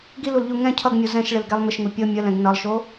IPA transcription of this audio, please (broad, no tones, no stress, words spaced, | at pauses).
ɡilulʎu ŋɛ̃ cʰʌɡmʲo zɛ̃ʃɭɪlɡɛlˠ mɪʃŋu pʲɤ mʲəlɛ̃ɡ nʌlˠʃo